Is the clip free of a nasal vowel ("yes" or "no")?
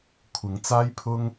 yes